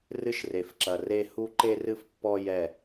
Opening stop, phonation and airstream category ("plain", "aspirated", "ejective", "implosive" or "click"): click